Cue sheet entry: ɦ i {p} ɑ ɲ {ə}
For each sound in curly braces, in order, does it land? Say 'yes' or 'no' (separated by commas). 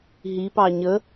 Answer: yes, yes